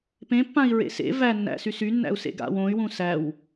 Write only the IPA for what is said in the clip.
p ẽ pː ã i̯ ɹ ḛ s ḛ v æ nː æ̰ s y s y nː æ̰ u̯ s ḛ ɡ a̰ w õ y̯ w ũ s æ w

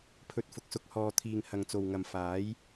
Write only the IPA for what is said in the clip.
pʰ ɵ˧ t̚ f ʊ˨˥ k̚ s ʊ˧ k̚ h ɔː˧ t̪ʰ iː˨ ŋ h ɐ˨ ŋ t͡s o˨ w ŋ ɐ˨ m f aː˨˥ j

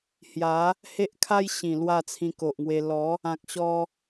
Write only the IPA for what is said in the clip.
h j a˨˦ | h e˦ ʔ kʰ a˦ j ɕ ĩ˨˩ l w a˥˧ t͡sʰ ĩ˧ k o˨ ʔ ŋ w e˧ l ɔ˨˦ | ã˨ k̚ ɕ ɔ˧

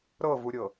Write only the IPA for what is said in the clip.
ɾ ɤ v u ɾʲ ɤ

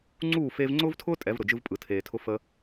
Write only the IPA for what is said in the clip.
ŋ͡ǀ uː˥˩ f eː˧ v ŋ͡ǀ ʊː˥ v tʰ ʊː˥ tʼ ɛ˩˥ v ɾ ʊ˩ d͡ʒ ɯ˧ v pʼ ɯ˩ tʰ eː˩ tʰ ʊ˧ f ə˧

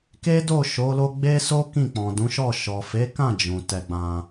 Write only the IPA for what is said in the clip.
k e˦ d o˦˨ ʃ o˨˦ l o˦ ɡ͡b e˦ s o˦ k ĩ˦˨ k͡p ɔ̃˨ d ũ˨˦ ʃ ɔ˦˨ ʃ ɔ˨ f e˨˦ k ã˦˨ d͡ʒ ũ˨ t ɛ˧ ɡ͡b ã˧

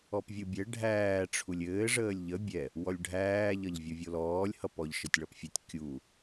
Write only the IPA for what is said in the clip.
ɔ p vʲ u bʲ ɛ ɖʱ æː ʈ͡ʂʰ u lʲ ɘː ʐ əː lʲ ʎ ə bʲ ɛ | w ɔ lʲ ɖʱ æː ʎ ʌ ʎ vʲ o vʲ o l ɔː lʲ h ʌ p ɔ ʎ ʃ ɘ tʲ ɭ ʌ p fʲ ɘ tʲ kʲ u

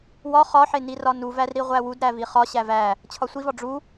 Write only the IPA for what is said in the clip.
w ɒ χ ɒ ħ e n i r ɒ n u v æ r ɾ i ʁʷ æ w u d ɾ æ v i χ ɒ ɕ æ v æ | t͡ɕʰ ɒ sʷ i v ɒ ɖ͡ʐ u

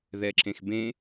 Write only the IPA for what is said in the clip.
ð ɛ ǁ ẽ x b ẽ

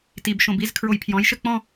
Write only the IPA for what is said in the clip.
t i b ʃ õ b i z kʰ ɹ o j pʰ j ɔ̃ j ʃ ɘ k͡p ɔ̃

